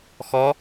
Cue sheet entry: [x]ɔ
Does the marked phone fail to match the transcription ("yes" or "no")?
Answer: no